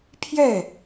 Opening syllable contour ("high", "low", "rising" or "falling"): falling